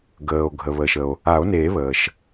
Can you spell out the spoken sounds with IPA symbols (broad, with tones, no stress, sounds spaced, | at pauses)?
ɡ əː˩ o̯ ɡʱ ə˩ β əː˩ ʃ ə˩ o̯ | a˨˩˦ o̯ n eː˨˩˦ β əː˩ ʃ